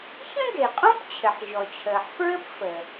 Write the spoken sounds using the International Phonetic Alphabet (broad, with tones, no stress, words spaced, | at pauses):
çə̃˥ɡe˩qʼõ˥p t͡ɕʰɘ˩ħʑɔ˩t͡ɕʰəː˩ħfɹɘ˥p fə˩